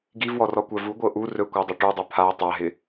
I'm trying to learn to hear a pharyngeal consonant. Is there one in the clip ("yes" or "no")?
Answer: no